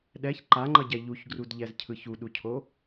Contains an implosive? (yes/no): yes